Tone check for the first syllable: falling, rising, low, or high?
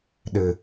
low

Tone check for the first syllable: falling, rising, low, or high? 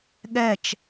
falling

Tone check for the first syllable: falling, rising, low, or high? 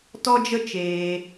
high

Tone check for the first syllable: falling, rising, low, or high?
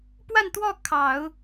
falling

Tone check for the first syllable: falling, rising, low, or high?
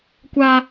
low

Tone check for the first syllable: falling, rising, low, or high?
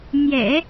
low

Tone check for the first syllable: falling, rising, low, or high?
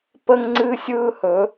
high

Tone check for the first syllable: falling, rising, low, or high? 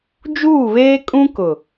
falling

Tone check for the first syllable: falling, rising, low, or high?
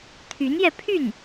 rising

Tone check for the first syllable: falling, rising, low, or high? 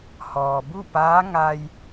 low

